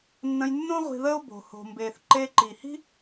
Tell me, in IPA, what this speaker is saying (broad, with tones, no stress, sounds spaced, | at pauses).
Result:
nː ə̃˧ j nː õ˥ ʁʷ i̤˧ ð əː˥ o̯ b o̤˩ h o̤˩ m b eː˩ θ ǃ eː˧ ǃ i˩ h i̤˥